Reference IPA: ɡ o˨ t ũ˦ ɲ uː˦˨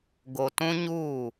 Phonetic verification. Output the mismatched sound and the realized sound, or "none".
none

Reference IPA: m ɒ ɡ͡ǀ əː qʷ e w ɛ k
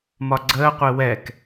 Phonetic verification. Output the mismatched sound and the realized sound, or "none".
none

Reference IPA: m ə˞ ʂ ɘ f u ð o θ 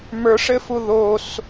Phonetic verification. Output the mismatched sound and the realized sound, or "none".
θ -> s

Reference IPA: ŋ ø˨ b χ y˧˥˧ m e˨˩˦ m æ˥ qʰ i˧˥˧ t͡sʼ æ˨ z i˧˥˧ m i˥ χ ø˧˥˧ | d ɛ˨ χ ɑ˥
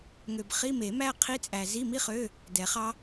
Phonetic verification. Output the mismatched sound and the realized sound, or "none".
y˧˥˧ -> i˧˥˧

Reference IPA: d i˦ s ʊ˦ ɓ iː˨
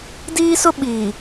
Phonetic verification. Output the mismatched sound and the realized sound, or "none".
i˦ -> iː˦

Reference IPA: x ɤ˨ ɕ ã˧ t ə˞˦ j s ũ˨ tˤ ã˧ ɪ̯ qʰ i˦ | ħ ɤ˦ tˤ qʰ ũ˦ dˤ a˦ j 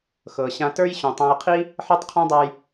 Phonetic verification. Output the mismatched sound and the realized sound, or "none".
s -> ɕ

